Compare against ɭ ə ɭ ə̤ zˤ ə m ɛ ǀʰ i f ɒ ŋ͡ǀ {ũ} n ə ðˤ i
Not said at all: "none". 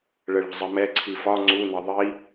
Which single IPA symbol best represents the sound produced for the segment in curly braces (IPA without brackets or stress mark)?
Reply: u